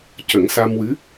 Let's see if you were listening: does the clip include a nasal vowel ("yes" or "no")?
no